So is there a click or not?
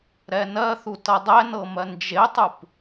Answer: no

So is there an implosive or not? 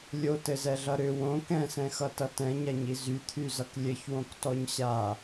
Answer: no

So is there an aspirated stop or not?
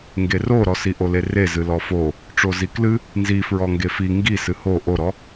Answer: no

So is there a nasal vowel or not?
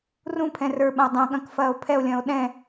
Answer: yes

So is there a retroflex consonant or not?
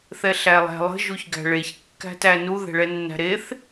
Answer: yes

